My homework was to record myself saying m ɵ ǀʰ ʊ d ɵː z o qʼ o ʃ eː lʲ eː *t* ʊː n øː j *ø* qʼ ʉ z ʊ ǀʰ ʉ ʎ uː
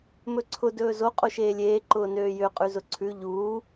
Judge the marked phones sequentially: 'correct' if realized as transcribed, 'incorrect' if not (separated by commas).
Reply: incorrect, correct